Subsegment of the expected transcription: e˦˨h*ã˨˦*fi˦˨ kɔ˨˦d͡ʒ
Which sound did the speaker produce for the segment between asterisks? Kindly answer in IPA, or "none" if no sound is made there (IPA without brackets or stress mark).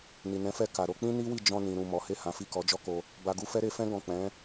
ã˨˦